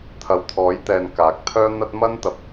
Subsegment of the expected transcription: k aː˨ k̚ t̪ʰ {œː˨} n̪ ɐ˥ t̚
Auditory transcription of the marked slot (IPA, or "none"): œː˥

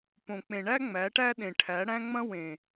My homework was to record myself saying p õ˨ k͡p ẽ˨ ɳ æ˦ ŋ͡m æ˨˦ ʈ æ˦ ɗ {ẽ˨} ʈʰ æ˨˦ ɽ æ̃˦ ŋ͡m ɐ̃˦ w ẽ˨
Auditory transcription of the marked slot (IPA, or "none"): ẽ˨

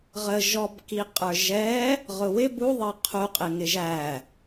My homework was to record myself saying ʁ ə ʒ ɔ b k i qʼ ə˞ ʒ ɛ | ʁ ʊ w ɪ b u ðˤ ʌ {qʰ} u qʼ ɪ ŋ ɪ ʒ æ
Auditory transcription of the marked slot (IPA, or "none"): qʰ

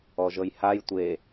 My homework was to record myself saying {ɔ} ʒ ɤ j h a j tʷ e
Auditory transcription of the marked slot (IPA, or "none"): ɔ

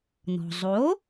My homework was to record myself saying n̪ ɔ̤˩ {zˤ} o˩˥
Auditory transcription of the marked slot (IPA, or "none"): zˤ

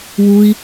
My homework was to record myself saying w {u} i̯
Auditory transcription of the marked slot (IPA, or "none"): u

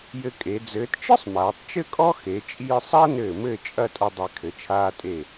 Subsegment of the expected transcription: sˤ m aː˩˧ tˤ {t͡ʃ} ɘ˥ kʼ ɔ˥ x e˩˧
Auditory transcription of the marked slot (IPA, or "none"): t͡ʃ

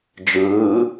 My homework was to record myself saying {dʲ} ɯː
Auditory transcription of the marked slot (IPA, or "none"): d͡ʒ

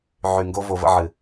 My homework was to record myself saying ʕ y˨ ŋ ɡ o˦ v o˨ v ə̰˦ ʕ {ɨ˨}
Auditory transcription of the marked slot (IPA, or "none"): ɨ˨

